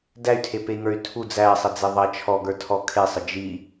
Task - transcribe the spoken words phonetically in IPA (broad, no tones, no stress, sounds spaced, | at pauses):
d æ y̯ tʰ e p e i̯ ŋ ə˞ y̯ tʰ u d͡z æ sˤ ə d͡z e ðˤ ɐ t͡ʃʰ ɔ ɡ ə˞ tʰ ɔ kʰ e sˤ ə d͡ʒ i